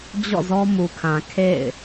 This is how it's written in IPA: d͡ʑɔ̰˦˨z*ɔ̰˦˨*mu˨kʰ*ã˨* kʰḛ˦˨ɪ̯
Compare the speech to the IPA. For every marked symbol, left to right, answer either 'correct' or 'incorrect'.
incorrect: ɔ˦, correct

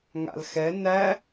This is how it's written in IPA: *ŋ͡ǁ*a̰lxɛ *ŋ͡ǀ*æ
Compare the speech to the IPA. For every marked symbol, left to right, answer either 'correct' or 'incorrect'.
incorrect: ŋ, incorrect: n

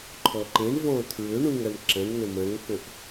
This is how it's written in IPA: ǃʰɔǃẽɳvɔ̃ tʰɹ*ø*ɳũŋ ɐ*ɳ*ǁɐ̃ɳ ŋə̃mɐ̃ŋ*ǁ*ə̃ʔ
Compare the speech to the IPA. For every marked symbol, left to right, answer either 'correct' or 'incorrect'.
correct, correct, incorrect: k

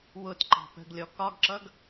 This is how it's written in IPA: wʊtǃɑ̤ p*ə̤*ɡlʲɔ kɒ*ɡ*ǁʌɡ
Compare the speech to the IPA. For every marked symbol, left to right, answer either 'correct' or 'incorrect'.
correct, correct

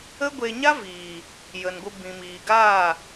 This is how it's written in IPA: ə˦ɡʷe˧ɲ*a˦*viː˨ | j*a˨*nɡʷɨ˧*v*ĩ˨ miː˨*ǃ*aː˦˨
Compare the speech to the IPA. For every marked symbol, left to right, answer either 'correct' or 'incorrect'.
correct, incorrect: ə˨, incorrect: b, incorrect: ɡ

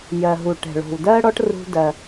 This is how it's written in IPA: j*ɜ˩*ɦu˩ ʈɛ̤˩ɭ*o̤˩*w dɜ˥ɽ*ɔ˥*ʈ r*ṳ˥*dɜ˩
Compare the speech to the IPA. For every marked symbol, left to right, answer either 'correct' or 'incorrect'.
correct, correct, correct, correct

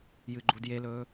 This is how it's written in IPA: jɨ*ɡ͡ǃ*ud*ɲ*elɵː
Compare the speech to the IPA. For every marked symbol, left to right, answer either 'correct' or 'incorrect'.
correct, incorrect: j

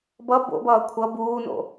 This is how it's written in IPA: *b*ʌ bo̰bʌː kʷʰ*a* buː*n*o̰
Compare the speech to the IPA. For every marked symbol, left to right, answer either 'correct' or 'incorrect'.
correct, incorrect: ʌ, correct

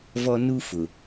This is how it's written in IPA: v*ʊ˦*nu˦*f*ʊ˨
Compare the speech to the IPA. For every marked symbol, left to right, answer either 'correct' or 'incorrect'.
incorrect: ɔ˦, correct

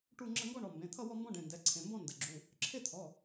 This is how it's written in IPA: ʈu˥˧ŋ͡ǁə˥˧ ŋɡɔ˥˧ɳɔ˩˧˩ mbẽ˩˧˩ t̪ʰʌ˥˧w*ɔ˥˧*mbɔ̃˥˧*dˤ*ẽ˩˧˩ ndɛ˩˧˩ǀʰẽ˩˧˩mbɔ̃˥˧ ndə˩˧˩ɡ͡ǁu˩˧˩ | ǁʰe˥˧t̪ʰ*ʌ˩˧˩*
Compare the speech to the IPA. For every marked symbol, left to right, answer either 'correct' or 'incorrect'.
correct, incorrect: ɖ, incorrect: ɔ˩˧˩

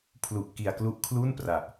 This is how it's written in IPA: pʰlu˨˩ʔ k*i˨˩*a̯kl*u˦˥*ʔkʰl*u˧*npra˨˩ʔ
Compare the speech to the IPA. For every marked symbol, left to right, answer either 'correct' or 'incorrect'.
correct, correct, incorrect: u˥˩

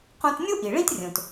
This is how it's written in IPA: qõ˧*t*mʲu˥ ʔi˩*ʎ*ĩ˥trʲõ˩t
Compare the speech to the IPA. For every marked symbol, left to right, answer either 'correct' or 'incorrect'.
correct, incorrect: ɭ

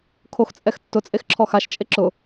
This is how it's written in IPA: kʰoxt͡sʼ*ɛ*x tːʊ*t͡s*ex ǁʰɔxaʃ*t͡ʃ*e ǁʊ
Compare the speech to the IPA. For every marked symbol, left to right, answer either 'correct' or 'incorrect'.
correct, incorrect: t͡sʼ, incorrect: t͡ʃʼ

